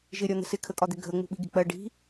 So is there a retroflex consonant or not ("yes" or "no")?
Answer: yes